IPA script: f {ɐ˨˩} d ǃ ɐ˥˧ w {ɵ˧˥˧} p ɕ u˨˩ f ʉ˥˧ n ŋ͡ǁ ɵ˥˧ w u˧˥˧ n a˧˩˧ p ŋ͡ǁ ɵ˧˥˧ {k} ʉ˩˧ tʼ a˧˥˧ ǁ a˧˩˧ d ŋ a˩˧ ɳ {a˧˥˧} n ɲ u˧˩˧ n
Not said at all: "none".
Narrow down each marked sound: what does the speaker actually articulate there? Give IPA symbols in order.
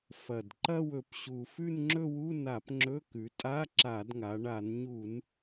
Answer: ɐ˨˩, ɵ˩˧, k, a˧˩˧

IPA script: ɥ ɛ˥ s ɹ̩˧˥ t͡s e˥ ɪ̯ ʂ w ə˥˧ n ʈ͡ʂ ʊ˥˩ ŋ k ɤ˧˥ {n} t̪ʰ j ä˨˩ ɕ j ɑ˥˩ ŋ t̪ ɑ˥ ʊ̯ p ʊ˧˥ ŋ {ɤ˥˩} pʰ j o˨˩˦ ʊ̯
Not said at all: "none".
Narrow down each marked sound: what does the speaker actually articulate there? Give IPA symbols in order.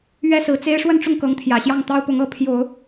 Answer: ŋ, ɤ˥˩

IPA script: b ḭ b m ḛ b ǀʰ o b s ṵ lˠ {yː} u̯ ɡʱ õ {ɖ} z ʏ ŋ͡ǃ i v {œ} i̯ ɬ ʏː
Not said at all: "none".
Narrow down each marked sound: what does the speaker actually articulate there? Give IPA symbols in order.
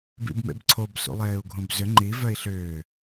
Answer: eː, b, œ

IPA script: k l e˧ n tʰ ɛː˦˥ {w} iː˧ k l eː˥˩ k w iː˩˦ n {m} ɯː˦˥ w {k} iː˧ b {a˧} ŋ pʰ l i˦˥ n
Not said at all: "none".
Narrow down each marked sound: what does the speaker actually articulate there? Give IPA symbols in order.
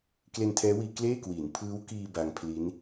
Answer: w, pʰ, k, a˧

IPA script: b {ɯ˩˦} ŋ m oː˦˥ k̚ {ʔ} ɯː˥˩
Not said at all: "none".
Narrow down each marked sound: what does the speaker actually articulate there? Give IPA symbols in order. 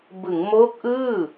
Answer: ɯ˩˦, ʔ

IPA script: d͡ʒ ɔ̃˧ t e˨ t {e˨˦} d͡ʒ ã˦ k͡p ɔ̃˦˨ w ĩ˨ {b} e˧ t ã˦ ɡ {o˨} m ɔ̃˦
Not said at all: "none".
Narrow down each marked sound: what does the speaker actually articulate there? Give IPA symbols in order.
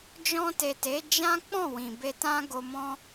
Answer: e˨˦, b, o˧

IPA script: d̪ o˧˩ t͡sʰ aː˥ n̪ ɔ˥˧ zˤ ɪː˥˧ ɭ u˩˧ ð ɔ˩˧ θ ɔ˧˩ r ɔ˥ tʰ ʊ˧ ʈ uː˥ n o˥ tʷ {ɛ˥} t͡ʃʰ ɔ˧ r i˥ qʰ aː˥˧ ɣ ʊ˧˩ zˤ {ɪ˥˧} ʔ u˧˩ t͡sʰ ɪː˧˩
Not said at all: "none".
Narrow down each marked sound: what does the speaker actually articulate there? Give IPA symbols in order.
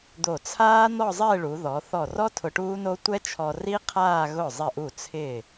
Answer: ɛ˥, ɪ˧˩

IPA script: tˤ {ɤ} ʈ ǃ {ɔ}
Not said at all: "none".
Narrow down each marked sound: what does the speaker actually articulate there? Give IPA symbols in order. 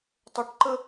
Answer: ɤ, ə

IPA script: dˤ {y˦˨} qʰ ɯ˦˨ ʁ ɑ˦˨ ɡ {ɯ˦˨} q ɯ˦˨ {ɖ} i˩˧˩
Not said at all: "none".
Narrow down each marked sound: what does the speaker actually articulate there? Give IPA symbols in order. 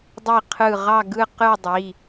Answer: i˦˨, ɯ˦˨, dˤ

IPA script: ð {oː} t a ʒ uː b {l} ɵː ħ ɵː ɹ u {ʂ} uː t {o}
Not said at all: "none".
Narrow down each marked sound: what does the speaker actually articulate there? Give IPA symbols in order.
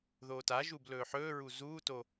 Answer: oː, l, z, o

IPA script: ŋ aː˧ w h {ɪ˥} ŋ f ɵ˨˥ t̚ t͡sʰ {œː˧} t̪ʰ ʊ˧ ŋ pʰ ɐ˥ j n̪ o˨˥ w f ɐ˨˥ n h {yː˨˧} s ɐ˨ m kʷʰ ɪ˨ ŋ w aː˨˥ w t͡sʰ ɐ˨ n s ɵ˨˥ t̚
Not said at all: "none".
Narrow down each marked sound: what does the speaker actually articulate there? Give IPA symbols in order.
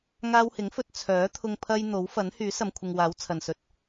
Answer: ɪ˨˥, œː˨˥, yː˨˥

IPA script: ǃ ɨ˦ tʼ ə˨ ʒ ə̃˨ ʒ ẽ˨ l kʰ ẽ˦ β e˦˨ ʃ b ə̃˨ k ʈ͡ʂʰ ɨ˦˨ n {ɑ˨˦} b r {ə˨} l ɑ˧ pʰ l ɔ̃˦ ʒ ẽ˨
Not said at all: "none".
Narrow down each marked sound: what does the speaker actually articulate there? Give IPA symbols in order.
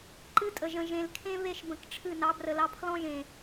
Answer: ɑ˨˦, ə˨

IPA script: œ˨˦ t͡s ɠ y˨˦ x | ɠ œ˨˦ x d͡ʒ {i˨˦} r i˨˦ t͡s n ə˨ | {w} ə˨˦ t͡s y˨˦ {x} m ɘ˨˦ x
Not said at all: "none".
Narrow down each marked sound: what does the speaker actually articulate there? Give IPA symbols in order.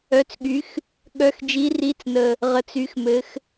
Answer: i˨˦, ʁ, x

